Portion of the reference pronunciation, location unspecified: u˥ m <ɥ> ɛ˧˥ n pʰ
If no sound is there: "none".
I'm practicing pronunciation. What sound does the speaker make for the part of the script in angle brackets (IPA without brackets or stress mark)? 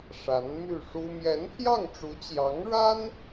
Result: j